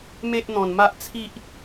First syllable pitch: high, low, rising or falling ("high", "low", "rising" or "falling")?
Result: high